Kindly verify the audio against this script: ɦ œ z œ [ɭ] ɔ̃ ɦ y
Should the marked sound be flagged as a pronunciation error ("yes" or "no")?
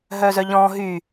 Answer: yes